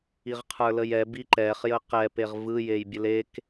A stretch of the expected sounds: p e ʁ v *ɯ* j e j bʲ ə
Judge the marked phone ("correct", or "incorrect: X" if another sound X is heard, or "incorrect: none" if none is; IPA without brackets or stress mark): correct